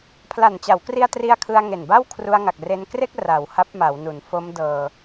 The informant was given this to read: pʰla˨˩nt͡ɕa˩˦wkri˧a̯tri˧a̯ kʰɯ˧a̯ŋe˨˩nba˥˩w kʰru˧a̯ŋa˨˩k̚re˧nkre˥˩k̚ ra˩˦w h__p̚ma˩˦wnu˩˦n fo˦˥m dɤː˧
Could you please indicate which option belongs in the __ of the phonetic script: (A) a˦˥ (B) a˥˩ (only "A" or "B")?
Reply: A